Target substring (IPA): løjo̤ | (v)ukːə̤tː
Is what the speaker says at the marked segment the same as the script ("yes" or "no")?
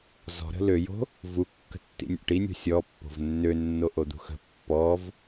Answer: yes